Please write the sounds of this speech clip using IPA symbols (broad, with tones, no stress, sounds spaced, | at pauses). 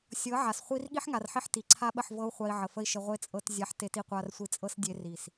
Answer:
sʲ ɤ˨˦ ʕ a˨ s χʷ i˦ r ɠ i˦ ħ ŋ a˨ r ħ i˧ ħ t i˨ ǀʰ a˦ ɓ ə˦˨ ħ v ɤ˦ u̯ χʷ a˧ i̯ ʕ ə˨ f ə˦ i̯ ʃ ə˧ ʁʷ e˦ t͡sʼ ɤ˧ t zʲ a˧ ħ t e˧ t i˧ qʷ a˧ r sʷ i˧ t͡sʼ ɤ˦ s dʲ e˧ r i˨ s